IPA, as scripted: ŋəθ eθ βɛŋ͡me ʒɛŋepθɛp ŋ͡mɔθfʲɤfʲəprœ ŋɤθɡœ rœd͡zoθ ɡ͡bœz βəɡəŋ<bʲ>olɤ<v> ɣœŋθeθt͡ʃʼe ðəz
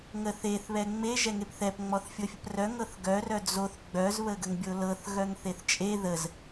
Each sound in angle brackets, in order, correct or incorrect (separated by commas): correct, incorrect